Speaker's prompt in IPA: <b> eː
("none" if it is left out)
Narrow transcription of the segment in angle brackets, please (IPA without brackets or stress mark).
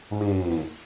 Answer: m